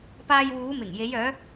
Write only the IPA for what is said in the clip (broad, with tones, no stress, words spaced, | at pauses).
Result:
paː˧jwuː˨˧ mɪ˨˩ŋje˨˧j œː˨˧